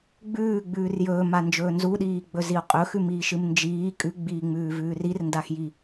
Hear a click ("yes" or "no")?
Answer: no